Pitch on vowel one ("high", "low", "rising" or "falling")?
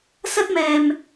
high